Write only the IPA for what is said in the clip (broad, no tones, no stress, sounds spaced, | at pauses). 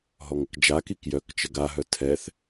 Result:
ɦ ɔ ŋ ə k d͡ʒ a k i k j œ k t͡ʃ ə ɡ a ɦ œ tʰ ɛ θ